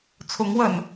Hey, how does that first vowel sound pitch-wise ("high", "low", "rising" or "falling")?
rising